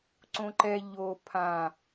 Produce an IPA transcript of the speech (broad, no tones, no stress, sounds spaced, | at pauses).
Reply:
ǀ õ ǃ ɛ ʎ o pʰ ã